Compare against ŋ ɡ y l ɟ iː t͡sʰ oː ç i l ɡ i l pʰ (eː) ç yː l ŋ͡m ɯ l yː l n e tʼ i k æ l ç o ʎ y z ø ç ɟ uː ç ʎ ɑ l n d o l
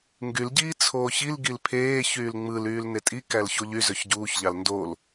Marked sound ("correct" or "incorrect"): correct